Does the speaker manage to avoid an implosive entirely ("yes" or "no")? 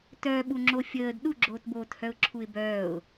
no